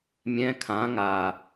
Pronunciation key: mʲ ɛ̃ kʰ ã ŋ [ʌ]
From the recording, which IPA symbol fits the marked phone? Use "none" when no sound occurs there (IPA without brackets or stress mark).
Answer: a